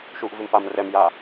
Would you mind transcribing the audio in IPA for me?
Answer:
ʃ u ʔ v ɪ m p a m r ɛ m j a

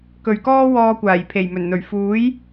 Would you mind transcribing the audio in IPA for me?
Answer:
k ɵ˨ ɥ k ɔː˥ w ɔː˧ kʷ aː˨˩ j pʰ e˨˩ j m ɵ˨˩ n n̪ ɵ˨˩ ɥ f uː˨˥ j

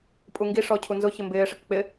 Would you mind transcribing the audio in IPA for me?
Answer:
pʼ u ŋ ɡ i ʂ ɔ cʰ u n z ʊ ç ɪ m b ɪː ʂ ɪ k k͡p ɪ

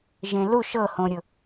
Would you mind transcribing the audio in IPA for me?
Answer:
ʒ ẽ l u ʃ ɤ h õ ɾʲ ʊ

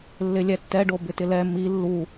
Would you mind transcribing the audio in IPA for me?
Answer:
lː ɪ lʲ ɛ tː ɛ ɖ o b ɪ t ɪ l ɛ m i lː u

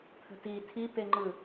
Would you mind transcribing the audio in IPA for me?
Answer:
t̪ʰ ə̤ t i tʰ i p e ŋ͡ǃ ɯ

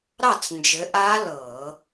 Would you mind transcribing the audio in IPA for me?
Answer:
ɾ ɑ˥˨ t͡s n d͡ʒ ɘ˨˦ ʔ aː˦˥ l ɤː˧˩˧

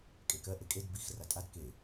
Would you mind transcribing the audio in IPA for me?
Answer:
kʼ e k ɜ ʔ e kʼ e d b i x r a tʼ a d k e

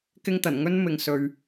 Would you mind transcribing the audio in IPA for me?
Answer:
k ɪ˥ ŋ t̪ ɐ˨˩ n ŋ ɵ˥ n m ɪ˨ ŋ s ɵ˧ ɥ

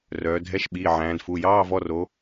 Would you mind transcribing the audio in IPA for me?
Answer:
r œː˩˧ dʱ ɛ˧˥˧ ʃ ɓ iː˩˧˩ ʕ æ̃ː˩˧ d f u˩˧˩ j ɑː˧˥˧ v ɔ˧˥˧ r o˨˥

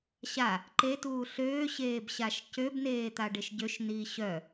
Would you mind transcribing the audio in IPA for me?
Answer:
ɕ a | ǃ e t uː ɬ øː ɕ eː b ɕ a ʃ c ø b n eː t̪ a ɖ e ʃ ɟ ø ʃ n iː ɕ œ

